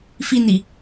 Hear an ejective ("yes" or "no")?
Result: no